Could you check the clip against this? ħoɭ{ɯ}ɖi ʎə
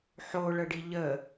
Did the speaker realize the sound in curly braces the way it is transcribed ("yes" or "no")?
no